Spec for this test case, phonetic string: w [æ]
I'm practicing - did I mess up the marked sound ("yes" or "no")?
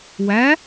no